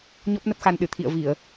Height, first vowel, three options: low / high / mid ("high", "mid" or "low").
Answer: mid